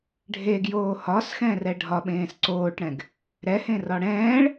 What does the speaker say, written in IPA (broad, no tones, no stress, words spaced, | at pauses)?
ɖʱeɡjoː hɒsxɛ̃rɛ ɖʱɒɓẽːs ǀoːʈɽɛ̃ɡ | ɾɛhẽrɒ ɽɛ̃ːɭ